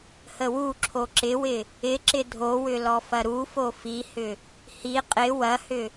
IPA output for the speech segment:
h ə w u ǁʰ o ǁ ɪ w ɪ | ɪ ǁ ɪ dʱ o w ʏ l ɔ f ɐ ɾ u f o f i h ʏ | h i qʼ ɪ w ɐ h ʏ

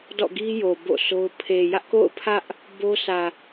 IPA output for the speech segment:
d ɔ̰˦˨ ɡ i˦ j o˨ b o̰˦˨ sʰ o˦ ʊ̯ pʰ e˨ j ä˦ ʔ k o̰˦˨ ʊ̯ pʰ ä˦ ʔ | b o˦ s ä˨

